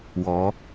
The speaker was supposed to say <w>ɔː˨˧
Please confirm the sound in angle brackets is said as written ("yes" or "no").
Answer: yes